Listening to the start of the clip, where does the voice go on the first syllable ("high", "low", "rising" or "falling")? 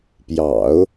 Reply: low